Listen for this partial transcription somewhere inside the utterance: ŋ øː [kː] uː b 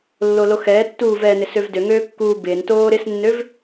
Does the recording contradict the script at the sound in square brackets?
no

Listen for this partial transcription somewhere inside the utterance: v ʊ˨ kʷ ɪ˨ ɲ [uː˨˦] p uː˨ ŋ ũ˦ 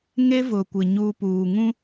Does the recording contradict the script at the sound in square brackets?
yes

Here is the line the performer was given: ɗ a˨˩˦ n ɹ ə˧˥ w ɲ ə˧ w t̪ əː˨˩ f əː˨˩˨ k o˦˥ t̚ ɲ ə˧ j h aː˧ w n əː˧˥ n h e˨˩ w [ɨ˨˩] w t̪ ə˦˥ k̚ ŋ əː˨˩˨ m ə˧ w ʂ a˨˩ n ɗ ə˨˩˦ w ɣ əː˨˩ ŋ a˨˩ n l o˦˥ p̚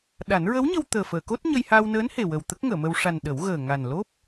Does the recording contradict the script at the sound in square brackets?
yes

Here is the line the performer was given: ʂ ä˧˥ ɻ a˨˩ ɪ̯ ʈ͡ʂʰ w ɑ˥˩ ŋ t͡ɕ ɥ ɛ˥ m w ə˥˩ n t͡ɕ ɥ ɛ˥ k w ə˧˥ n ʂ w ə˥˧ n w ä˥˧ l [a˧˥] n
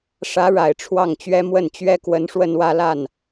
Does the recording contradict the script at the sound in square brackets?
yes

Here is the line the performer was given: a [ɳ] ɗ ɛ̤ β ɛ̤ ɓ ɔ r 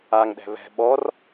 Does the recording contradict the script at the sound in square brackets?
yes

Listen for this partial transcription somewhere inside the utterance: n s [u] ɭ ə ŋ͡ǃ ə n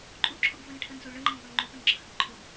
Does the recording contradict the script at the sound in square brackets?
no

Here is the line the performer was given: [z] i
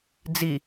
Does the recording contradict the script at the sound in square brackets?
yes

